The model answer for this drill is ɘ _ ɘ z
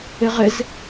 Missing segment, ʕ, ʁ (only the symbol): ʁ